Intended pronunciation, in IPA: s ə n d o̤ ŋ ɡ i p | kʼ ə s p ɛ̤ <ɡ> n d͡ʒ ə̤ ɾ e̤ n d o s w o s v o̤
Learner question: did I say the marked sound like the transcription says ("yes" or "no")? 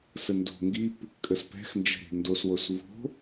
no